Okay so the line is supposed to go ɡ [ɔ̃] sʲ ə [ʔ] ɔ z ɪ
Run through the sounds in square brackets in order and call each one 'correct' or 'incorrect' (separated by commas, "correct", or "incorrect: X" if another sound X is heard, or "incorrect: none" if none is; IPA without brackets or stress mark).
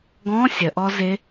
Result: correct, correct